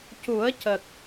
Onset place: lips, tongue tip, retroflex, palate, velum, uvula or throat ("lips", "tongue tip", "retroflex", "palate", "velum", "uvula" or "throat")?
palate